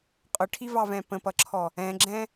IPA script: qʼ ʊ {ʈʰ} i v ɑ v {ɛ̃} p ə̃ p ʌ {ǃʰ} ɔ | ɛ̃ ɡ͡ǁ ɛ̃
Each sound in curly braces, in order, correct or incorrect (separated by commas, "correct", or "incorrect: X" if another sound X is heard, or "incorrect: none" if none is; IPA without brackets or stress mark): correct, correct, incorrect: ǁʰ